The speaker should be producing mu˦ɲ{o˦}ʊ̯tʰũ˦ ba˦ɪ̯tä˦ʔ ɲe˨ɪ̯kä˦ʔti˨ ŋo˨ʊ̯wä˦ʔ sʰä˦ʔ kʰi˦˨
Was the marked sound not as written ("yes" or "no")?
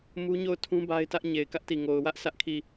yes